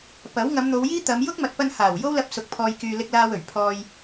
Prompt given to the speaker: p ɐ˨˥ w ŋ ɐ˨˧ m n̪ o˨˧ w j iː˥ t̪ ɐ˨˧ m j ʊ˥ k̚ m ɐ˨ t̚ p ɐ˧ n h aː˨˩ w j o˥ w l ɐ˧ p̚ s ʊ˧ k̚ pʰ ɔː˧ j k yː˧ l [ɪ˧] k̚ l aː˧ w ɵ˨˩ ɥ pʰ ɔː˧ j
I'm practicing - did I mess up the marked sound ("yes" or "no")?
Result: no